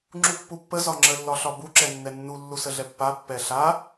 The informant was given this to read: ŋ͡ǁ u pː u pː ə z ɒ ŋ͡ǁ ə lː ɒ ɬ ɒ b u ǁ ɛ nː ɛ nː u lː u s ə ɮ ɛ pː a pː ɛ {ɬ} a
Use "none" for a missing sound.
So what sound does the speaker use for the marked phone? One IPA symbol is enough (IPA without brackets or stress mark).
ɬ